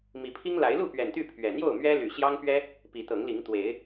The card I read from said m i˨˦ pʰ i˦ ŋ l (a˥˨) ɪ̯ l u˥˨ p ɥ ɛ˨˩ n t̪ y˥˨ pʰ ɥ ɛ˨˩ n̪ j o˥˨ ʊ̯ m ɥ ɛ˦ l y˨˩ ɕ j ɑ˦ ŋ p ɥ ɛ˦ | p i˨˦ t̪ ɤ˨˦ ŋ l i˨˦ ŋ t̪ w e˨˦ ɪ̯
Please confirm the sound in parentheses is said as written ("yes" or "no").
no